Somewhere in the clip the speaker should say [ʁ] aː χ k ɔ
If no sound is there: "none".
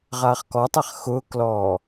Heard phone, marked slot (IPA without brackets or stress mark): ʁ